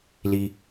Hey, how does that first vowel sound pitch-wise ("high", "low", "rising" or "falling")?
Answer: low